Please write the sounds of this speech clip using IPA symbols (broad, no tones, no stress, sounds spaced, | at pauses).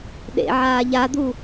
ɗ ḛ ʕ aː ʎ a d̪ u